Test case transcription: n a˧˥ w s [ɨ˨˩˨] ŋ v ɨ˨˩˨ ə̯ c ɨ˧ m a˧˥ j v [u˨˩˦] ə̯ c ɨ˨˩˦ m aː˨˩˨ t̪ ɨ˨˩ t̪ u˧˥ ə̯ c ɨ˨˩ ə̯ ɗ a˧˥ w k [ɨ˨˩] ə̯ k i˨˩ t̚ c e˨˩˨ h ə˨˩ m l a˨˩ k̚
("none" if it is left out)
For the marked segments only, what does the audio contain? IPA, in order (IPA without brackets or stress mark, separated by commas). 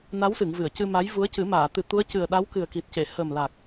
ɨ˨˩˨, u˧˥, ɨ˨˩